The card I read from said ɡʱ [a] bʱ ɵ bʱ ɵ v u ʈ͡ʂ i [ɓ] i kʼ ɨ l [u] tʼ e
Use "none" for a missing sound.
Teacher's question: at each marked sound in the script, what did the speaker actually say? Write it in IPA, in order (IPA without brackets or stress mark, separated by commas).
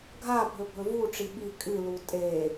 a, ɓ, u